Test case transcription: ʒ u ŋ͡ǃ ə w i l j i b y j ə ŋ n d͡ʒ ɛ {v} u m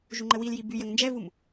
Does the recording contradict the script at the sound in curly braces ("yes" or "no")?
no